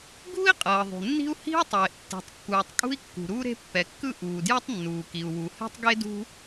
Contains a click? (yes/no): no